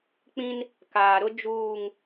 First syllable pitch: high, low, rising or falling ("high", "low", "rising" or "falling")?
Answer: high